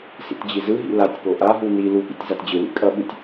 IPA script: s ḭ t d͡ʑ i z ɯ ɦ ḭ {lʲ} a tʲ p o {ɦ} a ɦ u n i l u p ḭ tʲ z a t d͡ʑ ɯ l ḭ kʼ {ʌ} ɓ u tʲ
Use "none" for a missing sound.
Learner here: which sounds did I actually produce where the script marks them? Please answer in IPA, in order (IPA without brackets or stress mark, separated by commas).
l, ʔ, ʌ